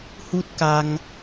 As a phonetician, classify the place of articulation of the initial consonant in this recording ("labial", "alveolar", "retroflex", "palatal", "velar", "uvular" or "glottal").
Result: glottal